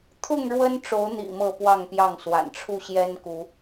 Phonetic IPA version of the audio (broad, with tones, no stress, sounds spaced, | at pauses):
t̪ʰ ʊ˥˨ ŋ ɻ w ə˦ n ʈ͡ʂ o˨˦ ʊ̯ n̪ ḭ˨˩ m ɤ˥˨ p w ɑ˥˨ ŋ p j ɑ˥˨ ŋ s w a̰˨˩ n ʈ͡ʂʰ u˥˨ ɕ j ɛ˦ n k u˨˦